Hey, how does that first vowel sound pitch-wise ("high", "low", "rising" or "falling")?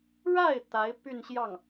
falling